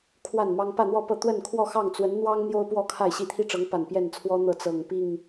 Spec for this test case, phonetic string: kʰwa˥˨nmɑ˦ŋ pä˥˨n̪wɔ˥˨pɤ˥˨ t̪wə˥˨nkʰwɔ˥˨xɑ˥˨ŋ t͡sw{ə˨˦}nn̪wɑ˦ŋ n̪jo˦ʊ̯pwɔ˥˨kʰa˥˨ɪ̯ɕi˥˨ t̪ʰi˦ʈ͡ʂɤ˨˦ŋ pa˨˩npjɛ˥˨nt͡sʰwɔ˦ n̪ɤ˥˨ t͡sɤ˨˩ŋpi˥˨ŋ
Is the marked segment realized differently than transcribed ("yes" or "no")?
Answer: no